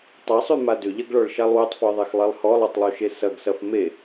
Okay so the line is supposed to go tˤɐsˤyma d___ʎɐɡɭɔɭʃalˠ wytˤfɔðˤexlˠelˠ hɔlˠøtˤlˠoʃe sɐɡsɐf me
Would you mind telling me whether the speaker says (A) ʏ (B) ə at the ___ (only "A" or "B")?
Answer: A